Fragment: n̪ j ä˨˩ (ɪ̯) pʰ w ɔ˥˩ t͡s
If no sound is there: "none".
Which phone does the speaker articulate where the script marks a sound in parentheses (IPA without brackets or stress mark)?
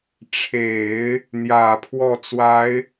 none